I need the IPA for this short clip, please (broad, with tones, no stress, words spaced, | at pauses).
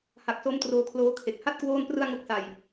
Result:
ha˨˩k̚so˦˥m troː˧kʰloː˦˥kʰe˨˩k̚ ha˥˩t̚ kwoː˥˩nprɯ˥˩a̯ ŋo˥˩k̚sa˨˩j